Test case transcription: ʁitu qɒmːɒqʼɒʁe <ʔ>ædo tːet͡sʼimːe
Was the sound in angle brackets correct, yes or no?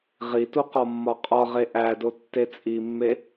yes